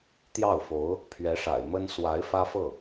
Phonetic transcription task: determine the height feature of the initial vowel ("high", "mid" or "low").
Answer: low